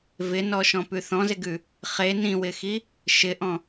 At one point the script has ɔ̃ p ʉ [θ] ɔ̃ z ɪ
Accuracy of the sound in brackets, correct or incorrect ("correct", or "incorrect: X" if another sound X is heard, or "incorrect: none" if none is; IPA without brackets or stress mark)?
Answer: correct